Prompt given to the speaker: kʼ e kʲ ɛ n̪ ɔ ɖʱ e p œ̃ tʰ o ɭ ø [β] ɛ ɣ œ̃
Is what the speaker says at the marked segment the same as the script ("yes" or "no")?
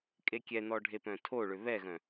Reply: yes